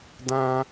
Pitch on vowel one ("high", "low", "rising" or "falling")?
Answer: high